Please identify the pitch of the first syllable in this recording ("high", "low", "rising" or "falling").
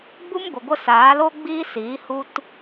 high